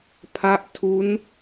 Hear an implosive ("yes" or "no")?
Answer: no